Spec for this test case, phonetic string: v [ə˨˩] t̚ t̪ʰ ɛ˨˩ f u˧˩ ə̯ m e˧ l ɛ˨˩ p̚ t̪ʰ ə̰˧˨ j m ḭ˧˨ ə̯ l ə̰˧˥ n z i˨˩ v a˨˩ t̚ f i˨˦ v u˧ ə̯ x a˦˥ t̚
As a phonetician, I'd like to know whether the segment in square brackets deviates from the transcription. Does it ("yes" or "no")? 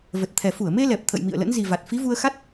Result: no